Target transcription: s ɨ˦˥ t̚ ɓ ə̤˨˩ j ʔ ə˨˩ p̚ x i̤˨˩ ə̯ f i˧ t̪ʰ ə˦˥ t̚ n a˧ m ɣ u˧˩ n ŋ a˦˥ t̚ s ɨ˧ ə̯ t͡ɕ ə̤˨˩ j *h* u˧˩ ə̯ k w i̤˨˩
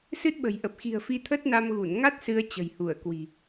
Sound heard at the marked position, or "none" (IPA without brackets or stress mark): h